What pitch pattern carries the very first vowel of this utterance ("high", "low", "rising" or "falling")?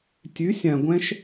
rising